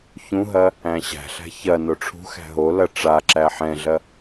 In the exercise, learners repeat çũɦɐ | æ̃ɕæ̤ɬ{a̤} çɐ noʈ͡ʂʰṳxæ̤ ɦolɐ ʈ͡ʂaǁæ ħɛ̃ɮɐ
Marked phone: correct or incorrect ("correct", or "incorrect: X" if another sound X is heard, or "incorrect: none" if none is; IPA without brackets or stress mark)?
incorrect: æ̤